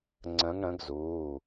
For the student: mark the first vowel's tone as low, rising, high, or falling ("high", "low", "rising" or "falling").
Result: rising